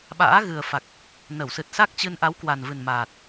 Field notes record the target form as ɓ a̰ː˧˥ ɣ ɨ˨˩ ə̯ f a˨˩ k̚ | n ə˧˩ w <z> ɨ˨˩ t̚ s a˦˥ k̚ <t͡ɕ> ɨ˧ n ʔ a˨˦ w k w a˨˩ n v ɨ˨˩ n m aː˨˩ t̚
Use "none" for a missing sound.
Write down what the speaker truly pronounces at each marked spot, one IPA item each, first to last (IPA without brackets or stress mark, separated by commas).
s, t͡ɕ